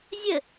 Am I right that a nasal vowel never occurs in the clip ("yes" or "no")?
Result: yes